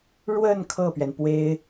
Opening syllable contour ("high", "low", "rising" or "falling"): falling